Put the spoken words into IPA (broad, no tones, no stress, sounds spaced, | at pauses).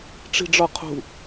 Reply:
ʈ͡ʂ i̤ ɖ͡ʐ ɒ qʰ ṳ